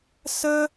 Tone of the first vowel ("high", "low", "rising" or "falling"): high